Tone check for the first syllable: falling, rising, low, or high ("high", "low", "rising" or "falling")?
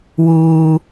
low